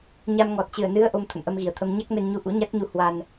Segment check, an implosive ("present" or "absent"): absent